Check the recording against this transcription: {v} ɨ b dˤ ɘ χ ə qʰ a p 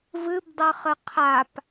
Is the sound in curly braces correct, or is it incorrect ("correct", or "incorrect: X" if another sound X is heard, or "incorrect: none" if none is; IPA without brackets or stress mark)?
correct